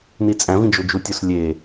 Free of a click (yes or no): yes